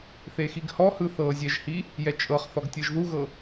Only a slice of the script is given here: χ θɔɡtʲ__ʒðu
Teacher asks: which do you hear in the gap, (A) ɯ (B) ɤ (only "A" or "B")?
B